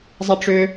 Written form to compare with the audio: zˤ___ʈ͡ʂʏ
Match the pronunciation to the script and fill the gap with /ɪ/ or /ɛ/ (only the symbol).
ɛ